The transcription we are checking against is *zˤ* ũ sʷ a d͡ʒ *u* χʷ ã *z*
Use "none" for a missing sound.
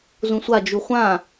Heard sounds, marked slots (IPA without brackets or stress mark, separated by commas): z, u, none